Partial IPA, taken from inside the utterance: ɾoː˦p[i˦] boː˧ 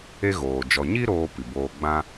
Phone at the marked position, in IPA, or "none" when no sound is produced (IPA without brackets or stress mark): i˨